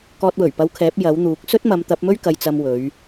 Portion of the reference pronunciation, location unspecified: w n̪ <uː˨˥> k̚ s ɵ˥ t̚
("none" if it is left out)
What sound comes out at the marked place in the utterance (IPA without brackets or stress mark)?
uː˨˥